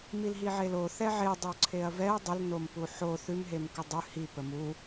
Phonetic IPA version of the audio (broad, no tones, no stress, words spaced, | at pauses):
milɦiʕelo θɛʕe dˤoǀʰeɐ̯vɛɐ̯ dˤəlnom puħo θʉmɦemkə dˤʉ hipə mu